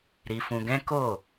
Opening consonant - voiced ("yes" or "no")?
yes